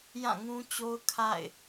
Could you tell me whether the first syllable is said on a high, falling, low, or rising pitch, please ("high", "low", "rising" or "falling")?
falling